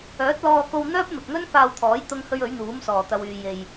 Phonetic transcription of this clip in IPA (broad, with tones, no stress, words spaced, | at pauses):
œː˨˥t̚lɔː˧ko˧w n̪œː˥p̚mɪ˨k̚ŋɵ˥n faː˧wt̪ʰɔː˨˥j t̪ʊ˥ŋhɵ˥ɥ ɵ˨˥ɥn̪uː˨˥msɔː˨˩ t̪ɐ˨wyː˨ je˨j